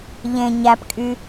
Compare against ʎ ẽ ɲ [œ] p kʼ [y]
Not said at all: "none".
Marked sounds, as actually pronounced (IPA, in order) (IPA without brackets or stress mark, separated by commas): æ, y